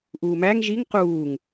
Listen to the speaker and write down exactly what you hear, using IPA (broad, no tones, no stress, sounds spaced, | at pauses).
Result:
ʔ uː m æ ŋ ʒ i ŋ q uː ŋ